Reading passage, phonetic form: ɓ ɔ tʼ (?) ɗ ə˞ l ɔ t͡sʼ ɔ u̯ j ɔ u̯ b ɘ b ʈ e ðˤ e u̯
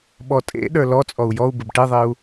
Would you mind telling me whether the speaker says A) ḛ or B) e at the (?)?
A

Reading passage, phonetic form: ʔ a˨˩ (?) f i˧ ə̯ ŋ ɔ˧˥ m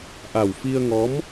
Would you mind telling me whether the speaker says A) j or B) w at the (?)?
B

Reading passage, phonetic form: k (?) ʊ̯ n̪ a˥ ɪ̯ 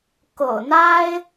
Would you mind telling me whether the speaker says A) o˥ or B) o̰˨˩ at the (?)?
B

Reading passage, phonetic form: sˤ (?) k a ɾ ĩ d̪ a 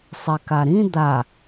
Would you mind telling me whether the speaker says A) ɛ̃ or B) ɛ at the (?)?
B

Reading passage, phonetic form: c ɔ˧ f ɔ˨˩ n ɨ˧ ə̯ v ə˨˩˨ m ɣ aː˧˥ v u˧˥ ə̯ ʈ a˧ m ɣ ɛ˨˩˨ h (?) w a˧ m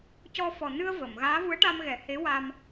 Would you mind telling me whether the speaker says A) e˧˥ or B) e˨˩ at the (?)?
A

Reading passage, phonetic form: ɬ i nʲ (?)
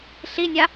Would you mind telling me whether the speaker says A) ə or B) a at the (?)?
B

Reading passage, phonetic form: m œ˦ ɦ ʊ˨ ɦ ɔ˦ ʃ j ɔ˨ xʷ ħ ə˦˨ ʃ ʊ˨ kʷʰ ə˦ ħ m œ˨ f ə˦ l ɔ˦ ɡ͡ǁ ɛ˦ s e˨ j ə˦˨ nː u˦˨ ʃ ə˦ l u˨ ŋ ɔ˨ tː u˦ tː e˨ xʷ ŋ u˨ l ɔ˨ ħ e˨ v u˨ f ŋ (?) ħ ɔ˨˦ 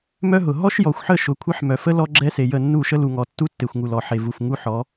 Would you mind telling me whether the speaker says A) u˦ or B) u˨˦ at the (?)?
A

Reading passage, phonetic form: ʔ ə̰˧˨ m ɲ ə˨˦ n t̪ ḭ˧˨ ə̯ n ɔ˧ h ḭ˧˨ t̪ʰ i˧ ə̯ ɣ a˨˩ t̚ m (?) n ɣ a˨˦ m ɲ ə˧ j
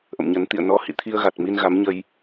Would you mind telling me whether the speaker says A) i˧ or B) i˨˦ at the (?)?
A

